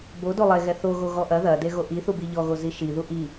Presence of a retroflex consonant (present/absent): absent